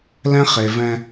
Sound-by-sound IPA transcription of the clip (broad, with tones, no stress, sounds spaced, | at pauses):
l ɛ̃˦ χ e˨ v ɛ̃˦